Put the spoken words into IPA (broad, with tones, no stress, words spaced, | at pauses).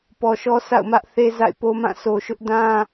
pɔ˨ʃɔ˦ sa̰˦˨ʊ̯mä˦ʔ θe˦za̰˦˨ɪ̯po˦mã˦˨ sʰo˨ʃʊ˦ʔdã˦